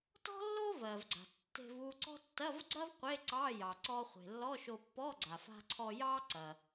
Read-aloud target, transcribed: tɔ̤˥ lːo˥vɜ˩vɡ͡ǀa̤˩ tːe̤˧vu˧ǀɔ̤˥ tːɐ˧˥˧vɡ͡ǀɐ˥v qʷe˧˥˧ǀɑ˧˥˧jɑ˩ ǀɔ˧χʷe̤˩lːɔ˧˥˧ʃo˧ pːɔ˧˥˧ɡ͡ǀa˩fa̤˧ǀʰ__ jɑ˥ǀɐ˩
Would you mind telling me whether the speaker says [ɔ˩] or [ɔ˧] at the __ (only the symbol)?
ɔ˧